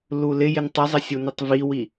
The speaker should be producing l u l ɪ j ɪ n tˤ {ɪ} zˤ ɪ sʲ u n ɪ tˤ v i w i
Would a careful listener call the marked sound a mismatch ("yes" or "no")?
no